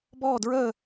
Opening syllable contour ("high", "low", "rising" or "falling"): falling